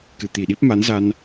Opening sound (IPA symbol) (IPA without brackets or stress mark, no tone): k